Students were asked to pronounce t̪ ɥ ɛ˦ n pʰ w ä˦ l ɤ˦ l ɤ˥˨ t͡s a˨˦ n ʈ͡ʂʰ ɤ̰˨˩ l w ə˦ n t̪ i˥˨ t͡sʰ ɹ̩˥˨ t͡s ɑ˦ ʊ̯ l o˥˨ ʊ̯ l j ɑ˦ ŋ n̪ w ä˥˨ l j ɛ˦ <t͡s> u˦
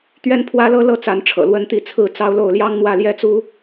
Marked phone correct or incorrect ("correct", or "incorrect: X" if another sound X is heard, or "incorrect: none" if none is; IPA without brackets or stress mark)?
correct